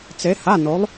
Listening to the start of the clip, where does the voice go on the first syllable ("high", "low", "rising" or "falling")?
rising